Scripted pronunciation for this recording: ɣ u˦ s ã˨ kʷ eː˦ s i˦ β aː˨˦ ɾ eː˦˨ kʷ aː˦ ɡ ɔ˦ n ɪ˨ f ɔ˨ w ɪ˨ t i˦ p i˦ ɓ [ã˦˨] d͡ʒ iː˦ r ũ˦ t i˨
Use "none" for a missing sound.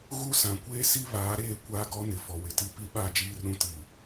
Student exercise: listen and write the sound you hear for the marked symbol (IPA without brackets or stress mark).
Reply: a˦˨